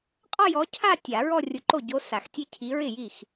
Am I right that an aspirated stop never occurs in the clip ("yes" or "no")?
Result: no